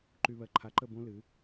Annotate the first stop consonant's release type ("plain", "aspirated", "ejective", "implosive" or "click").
click